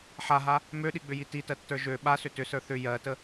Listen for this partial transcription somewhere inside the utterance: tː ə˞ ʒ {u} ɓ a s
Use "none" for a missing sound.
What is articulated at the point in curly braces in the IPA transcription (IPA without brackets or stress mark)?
ø